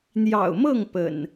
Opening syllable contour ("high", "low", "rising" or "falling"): low